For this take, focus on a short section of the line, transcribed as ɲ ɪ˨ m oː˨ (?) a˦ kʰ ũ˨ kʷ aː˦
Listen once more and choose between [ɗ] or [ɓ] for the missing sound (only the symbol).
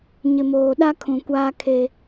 ɗ